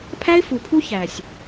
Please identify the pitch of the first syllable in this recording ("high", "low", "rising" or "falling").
high